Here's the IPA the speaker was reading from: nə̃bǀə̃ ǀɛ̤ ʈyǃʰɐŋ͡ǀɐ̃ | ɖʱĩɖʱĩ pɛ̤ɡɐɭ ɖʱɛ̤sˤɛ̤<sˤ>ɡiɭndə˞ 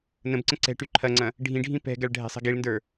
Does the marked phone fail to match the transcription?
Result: yes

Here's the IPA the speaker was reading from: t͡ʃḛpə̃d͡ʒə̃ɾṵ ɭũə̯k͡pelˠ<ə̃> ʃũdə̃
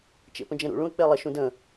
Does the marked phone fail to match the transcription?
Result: yes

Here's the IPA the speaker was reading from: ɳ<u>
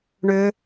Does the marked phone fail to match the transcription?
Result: yes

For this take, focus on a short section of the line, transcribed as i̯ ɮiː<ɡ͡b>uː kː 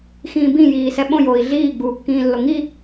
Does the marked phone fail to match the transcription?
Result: no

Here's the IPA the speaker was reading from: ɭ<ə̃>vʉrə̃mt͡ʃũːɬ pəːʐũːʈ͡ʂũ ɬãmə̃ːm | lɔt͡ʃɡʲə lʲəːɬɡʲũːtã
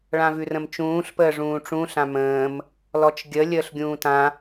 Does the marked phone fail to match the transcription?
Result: yes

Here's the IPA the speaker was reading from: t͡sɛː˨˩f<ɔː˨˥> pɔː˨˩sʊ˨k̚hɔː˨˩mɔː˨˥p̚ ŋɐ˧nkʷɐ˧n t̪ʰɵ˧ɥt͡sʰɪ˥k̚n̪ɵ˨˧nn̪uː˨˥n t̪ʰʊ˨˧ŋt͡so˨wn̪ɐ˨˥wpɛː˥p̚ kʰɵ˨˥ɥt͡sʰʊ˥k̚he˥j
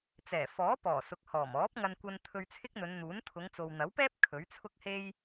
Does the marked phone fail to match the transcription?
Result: no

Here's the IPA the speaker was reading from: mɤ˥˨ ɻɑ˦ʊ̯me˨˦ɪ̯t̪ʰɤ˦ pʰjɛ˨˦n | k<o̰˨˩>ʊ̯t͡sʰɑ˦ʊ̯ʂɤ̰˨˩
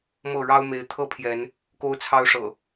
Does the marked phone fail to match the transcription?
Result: yes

